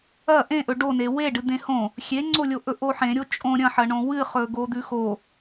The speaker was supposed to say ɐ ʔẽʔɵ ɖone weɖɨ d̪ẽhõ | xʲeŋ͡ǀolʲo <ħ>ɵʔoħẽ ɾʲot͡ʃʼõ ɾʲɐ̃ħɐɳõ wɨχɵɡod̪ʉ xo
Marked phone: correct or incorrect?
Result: incorrect